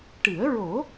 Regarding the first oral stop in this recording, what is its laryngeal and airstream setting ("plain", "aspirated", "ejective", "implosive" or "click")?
plain